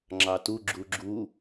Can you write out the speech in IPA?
ŋ͡ǁɑtu ɡ͡ǁuɡ͡ǁu

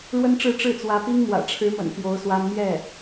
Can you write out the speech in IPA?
ɻwə˥nʈ͡ʂɻ̩˥˧ ʈ͡ʂɻ̩˥˩t͡swä˧˥pi˥ŋmwä̰˨˩ ʈ͡ʂʰɻ̩˧˥mə̰˨˩n pjo˧˥ʊ̯swa˥n mjɛ˥˩

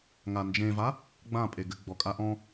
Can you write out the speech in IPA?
ŋand͡ʒẽva | ɡ͡bãpʼeɡɘ ɡ͡bɔkʼaʔɔ̃

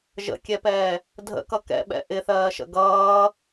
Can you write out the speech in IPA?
ʒə̰kʲɛpɛː | dʱə̰kʌ kɛ̰ɓɛ̰ ʔɪθɜːʃə̰ ɡʌː

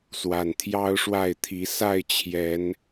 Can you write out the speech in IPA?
swa˨˩nt̪ʰjɑ˦ʊ̯ʂwa˥˨ɪ̯t̪ʰi˨˦ sa˥˨ɪ̯t͡ɕʰjɛ˨˦n

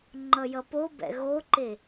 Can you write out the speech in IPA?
ŋ͡ǃʌjʌpobɛ̰ ɣoǃe

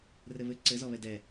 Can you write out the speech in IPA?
rɘβɘ ǀɘzɔβɛ dɛ

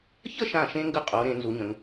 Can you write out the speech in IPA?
çə˥˧ʃã˧˩ʃẽ˧ŋɡə˧˩ qʼo˩˧ ɾẽ˩˧ nzu˩˧ɲə̃˩˧ŋ

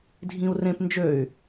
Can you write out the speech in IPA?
dʱĩu̯rẽp nd͡ʒøy̯

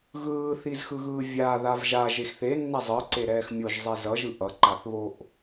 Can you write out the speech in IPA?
ɣɯːθizxɯɣɯː vʲaðav ʒaʒex θenːɛ zˤɯǀeɾɛːx mʲoʒzˤe zʌʒɯ ʔʌǃaθβoʔ

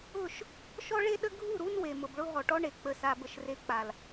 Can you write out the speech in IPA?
ʊ˦˨ʃ | ʃɔ˦ɭe˦ɗə˦ ɡʱu˦˨ɾu˦n we˨mʊ˨bɭʊ˦ ɦɔ˨ʈɔ˦ɳe˨ k͡pə˨sa˨bə˨ʃ re˨ k͡pa˨l

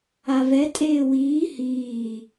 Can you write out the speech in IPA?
avɛ tʼeːwiː hiː

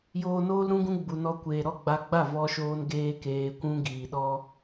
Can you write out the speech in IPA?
joː˧noː˦lɾũ˦ɡũ˦ ɡ͡bu˨nɔ˧kʷeː˨ ɾɔ˦˨ɡ͡ba˧ɡ͡ba˦˨ vɔ˦ʃoː˦n ɡeː˦keː˧kʷũ˦ɡiː˨ ɗɔ˦

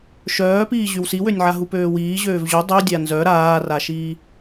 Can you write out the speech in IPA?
ʃœːpiː ʑywsiwønʲʕa ɦupøːwiː ʑøːvʑø dˤydʲa nzœ ɾaːraʃiː

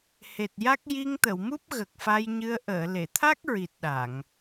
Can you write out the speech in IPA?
he˨˩t̚ja˦˥k̚ ji˧ŋt̪ə˨˩˨wmu˦˥p̚ ɣə˨˩k̚fa˧jɲɨ˧ə̯ ʔəː˨˩˨le˨˩˨t̪ʰa˦˥k̚ɹi˨˩t̚ ɗa˨˩˨ŋ

